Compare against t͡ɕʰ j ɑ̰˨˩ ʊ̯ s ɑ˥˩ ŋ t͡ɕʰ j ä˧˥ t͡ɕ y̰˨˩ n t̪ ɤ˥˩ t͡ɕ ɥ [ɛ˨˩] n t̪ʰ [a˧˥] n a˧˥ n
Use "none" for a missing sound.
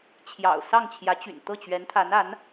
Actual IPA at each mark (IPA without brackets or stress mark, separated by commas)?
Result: ɛ˧˥, a˧˥